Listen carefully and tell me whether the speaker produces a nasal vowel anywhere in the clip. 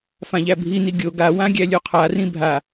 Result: yes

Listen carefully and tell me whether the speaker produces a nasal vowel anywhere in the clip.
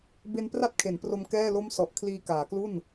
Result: no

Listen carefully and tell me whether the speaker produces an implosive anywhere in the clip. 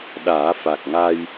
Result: yes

